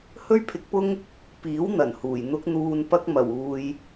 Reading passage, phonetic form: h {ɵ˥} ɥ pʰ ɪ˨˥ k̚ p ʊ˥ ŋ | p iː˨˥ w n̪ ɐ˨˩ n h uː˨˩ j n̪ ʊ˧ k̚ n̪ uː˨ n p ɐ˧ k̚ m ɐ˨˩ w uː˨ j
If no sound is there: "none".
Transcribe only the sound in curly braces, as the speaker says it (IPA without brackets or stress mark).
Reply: ɵ˥